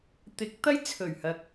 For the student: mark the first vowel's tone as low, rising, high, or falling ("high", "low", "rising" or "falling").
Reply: rising